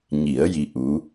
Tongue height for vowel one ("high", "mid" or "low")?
high